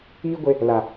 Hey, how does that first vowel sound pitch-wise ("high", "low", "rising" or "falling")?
high